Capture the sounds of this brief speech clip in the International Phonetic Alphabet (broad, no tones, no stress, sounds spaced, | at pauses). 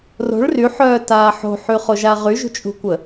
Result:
r o̤ ɭ r y ħ œː t aː ħ o̤ ħ y χ o ʒ a ʁ y ʒ ṳ t͡ʃʼ ṳ kʷ ə